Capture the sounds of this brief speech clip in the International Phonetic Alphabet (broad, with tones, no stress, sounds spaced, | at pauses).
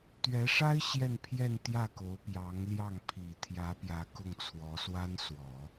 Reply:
t̪ ɥ ɛ˧˥ ʂ a˥ ɪ̯ ɕ j ɛ˥˧ n pʰ j ɛ˥˧ n t̪ j ä˥˩ k o˧˥ ʊ̯ p j ɑ˧˥ ŋ l j ɑ˥˩ ŋ pʰ i˨˩ t̪ʰ j ä˧˥ p j ä˧˥ k ʊ˥˩ ŋ t͡sʰ w ɔ˧˥ s w a˥ n s w ɔ˨˩˦